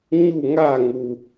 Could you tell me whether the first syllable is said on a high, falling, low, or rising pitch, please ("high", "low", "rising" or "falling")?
falling